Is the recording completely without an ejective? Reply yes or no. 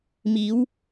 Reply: yes